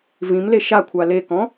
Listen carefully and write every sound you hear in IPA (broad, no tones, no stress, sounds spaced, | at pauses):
v ĩ m l e ʃ a kʷʰ a l e k ɔ̃